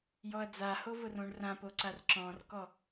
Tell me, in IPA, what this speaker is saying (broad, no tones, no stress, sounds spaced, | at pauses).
j ɔ ɐ̯ d͡z a h o v ʊ r õ ɳ r ã p o ǀ a r ǁ ɔ̃ r k ɔ